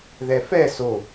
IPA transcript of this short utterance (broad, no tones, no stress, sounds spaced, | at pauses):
ð ɛ f ɛ s o